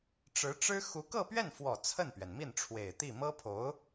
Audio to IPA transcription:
ʈ͡ʂɻ̩˧˥ʈ͡ʂɻ̩˥ xu˧˥kɤ˥˧pɥɛ˥˩nfwɔ˨˩ t͡sʰə˥˩npɥɛ˩nmi˥˩n ʈ͡ʂʰwe˨˩ɪ̯t̪i˥˩ mɤ˥pʰo˧˥ʊ̯

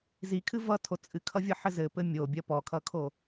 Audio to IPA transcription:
zikʰɨ vʌtʰo t͡sʼɨkʰʌvʲʌħɘ zɘpɘ mʲobʲɐ pɔkʰʌkʰo

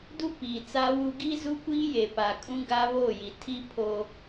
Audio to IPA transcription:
du˦piː˨ t͡sa˦wu˦ ɡiː˦ zu˦kʷiː˦je˨ pa˨kʼũ˦ ɡa˦βoː˦˨ji˨ tʰi˦ pʰo˦

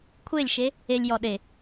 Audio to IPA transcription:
kʷʰelʲʃe | elʲjɔ ɗe

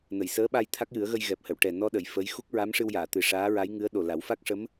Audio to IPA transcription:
nə˨˩˨jsəː˧˥ɓa˧j t̪ʰa˦˥k̚jɨ˨˩˦ə̯ɣə˧j ɣɛ˨˩p̚hə˨˩˨w ʈɛ˨˩nɔ˧ɗə˨˩˨j fə˧˥j xu˦˥k̚ ɹa˧˥mʂɨ˧wjaː˨˩˨ t̪ɨ˨˩ʂaː˧˥ɹa˧˥j ŋɨ˧˥ə̯ɗo˨˩ la˨˩˦w fa˦˥k̚ʂə˧˥m

